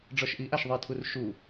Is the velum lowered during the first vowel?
no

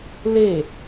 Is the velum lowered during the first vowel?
no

